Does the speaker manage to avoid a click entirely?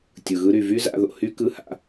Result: yes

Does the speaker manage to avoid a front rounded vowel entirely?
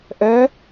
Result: no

